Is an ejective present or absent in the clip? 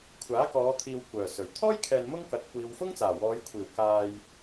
absent